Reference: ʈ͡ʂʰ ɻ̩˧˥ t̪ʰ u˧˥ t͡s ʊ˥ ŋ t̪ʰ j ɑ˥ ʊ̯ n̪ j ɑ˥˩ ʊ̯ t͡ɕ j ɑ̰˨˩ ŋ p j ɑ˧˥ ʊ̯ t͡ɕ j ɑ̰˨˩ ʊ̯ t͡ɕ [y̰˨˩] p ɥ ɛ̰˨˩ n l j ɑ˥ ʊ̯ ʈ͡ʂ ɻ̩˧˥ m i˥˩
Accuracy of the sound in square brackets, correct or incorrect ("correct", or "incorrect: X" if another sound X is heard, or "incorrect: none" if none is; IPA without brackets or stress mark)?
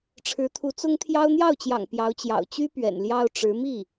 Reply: incorrect: y˥